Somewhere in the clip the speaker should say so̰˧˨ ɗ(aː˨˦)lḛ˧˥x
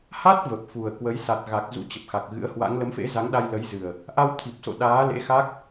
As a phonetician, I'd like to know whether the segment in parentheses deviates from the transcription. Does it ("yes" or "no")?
no